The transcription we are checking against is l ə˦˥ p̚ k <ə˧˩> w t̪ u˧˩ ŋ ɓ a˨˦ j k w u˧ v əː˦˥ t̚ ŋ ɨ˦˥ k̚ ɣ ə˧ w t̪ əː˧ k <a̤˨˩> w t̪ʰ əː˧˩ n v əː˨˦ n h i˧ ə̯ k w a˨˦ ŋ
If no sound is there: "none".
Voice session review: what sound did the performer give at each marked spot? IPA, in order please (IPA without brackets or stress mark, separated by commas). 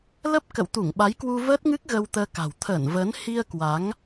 ə̰˧˨, a̤˨˩